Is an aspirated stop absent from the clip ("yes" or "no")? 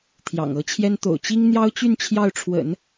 no